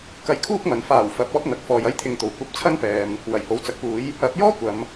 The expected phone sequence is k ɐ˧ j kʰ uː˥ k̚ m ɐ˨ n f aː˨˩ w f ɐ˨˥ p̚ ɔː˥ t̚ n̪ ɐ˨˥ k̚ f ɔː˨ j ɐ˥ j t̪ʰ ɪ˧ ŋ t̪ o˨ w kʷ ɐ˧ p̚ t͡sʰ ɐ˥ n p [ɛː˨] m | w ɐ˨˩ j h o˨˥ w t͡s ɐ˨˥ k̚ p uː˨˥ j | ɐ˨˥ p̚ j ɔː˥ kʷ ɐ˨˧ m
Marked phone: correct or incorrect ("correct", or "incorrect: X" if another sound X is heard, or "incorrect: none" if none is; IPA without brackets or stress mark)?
correct